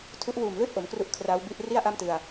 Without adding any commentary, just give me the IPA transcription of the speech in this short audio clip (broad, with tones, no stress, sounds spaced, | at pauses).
tʰ u˦˥ ʔ w uː˨˩ m l ɯː˥˩ t̚ ʔ o˩˦ m k r u˦˥ ʔ kʰ r aː˦˥ w b i˦˥ ʔ r i˥˩ a̯ ʔ a˥˩ m t ɯ˧ a̯